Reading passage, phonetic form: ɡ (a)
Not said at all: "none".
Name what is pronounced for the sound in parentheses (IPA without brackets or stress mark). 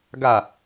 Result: a